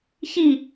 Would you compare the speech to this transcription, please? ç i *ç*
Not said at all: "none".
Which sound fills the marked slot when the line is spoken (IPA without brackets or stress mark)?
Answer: none